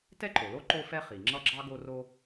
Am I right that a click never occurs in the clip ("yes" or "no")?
no